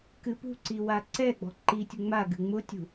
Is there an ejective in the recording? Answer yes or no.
no